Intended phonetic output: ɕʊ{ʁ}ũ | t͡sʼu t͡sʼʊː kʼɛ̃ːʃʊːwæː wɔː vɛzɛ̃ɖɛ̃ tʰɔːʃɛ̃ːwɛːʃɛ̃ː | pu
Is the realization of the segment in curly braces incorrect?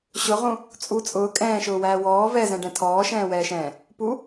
no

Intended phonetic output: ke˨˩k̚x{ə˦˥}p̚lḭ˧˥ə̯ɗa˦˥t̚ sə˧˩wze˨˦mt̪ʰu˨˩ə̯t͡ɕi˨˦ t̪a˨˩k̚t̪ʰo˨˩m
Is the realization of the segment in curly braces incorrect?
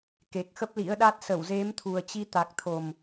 no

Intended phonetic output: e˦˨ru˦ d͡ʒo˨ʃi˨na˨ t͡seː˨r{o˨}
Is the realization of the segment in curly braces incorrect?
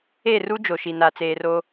yes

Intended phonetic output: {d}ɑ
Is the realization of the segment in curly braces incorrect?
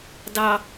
no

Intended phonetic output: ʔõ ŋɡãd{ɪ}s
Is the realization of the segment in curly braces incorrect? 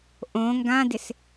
no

